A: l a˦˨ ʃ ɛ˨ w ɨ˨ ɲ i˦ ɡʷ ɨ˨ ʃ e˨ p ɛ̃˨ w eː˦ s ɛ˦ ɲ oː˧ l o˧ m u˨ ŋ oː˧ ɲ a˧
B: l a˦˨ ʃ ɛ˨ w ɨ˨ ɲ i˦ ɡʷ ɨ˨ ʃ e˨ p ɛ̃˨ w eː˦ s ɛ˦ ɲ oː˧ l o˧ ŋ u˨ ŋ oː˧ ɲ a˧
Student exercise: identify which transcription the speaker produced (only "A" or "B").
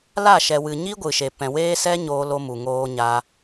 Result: A